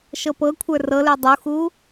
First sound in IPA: ʃ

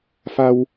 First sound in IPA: f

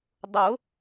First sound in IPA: dˤ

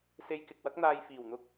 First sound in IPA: s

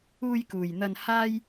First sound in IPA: uː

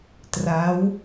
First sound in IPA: t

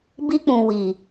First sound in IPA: b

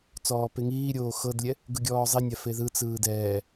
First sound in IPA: t͡s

